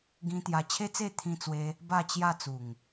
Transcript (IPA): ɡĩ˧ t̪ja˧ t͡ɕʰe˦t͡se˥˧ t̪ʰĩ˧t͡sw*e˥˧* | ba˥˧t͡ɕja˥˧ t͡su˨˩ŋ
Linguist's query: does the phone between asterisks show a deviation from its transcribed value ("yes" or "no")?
yes